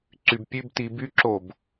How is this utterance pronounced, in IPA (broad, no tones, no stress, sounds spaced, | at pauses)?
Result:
ǀ y b pʲ ʉ b t i b y ǁ o b